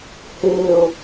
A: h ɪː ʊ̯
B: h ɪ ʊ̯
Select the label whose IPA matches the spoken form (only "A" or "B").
A